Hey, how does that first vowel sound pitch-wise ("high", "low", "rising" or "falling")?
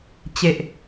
low